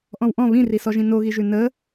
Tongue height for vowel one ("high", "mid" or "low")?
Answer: mid